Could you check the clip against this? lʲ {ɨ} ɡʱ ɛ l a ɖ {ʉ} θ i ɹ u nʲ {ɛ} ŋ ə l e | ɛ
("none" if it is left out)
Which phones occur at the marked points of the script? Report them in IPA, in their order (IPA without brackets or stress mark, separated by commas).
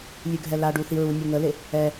ʉ, u, ɛ